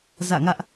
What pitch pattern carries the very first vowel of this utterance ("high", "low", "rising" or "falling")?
falling